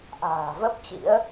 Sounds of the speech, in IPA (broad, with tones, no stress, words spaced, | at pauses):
ʔa̤ː˨˩ və˦˥p̚t͡ɕḭ˧˥ə̯